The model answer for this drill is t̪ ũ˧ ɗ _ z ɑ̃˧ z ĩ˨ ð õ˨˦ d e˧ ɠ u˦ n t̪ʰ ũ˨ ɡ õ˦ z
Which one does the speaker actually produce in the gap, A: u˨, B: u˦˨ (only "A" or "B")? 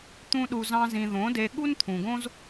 A